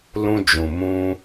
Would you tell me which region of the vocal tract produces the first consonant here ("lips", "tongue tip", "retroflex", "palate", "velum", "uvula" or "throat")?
tongue tip